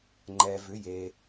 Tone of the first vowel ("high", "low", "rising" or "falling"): low